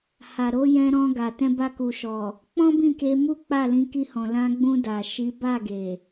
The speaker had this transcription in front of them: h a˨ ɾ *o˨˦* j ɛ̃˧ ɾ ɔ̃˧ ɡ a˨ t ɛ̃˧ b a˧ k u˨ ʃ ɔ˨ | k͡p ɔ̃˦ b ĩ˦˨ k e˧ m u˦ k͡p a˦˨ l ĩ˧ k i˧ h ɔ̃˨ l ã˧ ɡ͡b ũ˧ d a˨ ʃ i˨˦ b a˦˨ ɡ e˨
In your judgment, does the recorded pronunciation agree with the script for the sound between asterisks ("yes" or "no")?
yes